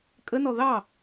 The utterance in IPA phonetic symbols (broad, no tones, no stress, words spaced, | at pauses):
kʼənɔ ðɑ